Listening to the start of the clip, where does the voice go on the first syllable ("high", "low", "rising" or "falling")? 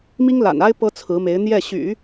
high